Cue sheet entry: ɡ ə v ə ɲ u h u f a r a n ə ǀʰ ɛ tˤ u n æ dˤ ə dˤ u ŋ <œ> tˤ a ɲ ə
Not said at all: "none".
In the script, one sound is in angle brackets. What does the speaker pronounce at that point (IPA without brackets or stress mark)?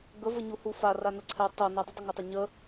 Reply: æ